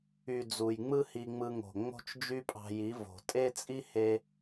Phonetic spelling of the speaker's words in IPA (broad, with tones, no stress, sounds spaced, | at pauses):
y˨ d͡z u˨ j ŋ͡m ɯ˦ h i˧ ŋ͡m ɯ˧ ŋ o̤˨ ŋ͡m o̤˦ t͡ʃ d͡ʒ y˦ pʼ ɑ̤˧ j i˨˦ v o̤˨ tʼ e˦ t͡sʼ i˦ h e˦